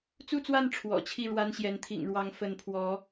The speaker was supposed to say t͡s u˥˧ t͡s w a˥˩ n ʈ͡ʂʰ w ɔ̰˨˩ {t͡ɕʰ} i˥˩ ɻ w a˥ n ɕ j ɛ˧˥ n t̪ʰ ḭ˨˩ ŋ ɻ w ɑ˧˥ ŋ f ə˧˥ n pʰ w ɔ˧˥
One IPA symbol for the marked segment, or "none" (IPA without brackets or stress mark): t͡ɕʰ